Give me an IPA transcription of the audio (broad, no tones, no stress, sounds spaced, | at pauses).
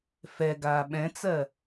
f ɛ ɡ aː ɓ ɛ̃ t͡s ɜ